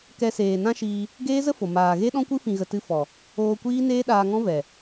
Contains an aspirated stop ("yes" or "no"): no